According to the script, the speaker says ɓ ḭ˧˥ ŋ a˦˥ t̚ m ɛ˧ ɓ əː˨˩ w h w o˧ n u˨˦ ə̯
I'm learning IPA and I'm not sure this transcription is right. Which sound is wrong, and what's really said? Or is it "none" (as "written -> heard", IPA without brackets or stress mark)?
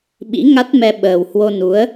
none